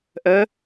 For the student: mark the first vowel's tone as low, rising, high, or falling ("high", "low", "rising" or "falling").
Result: rising